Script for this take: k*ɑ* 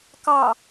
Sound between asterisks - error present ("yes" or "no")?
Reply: no